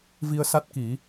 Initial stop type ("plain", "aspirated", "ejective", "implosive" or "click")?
plain